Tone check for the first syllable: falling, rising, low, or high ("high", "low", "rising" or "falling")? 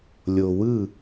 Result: low